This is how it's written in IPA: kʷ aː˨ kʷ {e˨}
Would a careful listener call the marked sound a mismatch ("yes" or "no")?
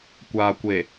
no